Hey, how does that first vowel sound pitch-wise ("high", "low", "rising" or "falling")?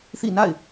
falling